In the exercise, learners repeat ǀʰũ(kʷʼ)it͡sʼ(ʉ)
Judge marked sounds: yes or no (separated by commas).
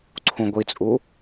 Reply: no, no